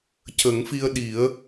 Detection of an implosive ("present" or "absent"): present